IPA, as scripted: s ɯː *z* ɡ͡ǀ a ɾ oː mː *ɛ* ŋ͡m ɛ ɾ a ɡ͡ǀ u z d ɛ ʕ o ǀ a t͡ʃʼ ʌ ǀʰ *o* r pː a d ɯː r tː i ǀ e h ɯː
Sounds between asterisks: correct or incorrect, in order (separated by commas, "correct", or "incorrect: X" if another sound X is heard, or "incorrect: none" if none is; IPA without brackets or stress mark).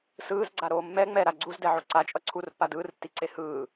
correct, correct, incorrect: u